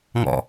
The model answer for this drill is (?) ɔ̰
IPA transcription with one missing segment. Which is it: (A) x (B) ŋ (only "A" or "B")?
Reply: B